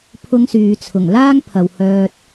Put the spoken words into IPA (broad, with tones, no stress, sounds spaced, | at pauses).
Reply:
pʰ ʊ˧ ŋ s yː˨ t͡sʰ ʊ˨˩ ŋ l aː˥ ŋ pʰ ɐ˨ w h œː˧ t̚